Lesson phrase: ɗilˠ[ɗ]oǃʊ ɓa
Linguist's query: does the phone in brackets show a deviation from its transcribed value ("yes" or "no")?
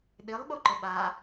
yes